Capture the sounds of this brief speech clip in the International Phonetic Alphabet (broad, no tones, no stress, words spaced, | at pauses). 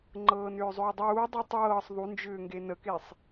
ŋ͡ǃɤːnʏːzˤʏːdˤuː dˤutˤɤːsˤ ðˤund͡ʒʏːŋɡe nəkesˤ